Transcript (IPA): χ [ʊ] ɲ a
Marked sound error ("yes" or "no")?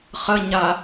yes